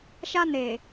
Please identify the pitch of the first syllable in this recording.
high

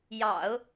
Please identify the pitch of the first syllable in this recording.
low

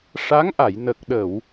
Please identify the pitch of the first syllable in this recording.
rising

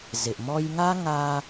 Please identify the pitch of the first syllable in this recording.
low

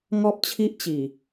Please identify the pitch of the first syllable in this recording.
high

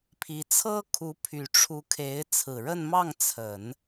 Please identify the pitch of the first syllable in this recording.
rising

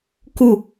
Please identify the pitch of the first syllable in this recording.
falling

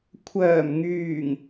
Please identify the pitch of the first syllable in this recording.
low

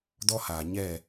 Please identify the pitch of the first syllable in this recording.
high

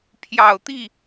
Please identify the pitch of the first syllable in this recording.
low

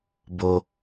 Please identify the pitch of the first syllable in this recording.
high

